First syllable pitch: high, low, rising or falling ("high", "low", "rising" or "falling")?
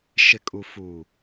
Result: low